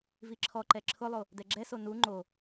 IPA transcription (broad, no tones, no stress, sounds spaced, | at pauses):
v i ǁʰ ɔ ǃ ɛ ǁʰ ʊ lˠ o | d ɛ ɡ͡ǁ ɛ s o n u ŋ͡ǃ o